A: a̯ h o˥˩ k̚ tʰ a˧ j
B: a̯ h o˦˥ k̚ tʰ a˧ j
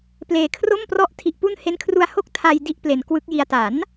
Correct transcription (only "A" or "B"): A